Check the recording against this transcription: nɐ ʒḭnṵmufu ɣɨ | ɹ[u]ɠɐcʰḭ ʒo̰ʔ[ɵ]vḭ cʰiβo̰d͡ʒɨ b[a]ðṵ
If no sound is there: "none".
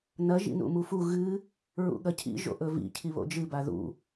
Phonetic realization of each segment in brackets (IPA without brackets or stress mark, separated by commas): ṵ, ɵ, a